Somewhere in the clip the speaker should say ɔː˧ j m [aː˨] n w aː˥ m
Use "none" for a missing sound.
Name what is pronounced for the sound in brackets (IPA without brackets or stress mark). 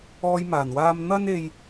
aː˨˩